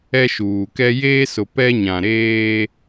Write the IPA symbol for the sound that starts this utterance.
ɛ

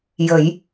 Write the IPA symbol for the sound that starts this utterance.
j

